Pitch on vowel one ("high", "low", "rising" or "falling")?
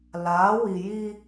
rising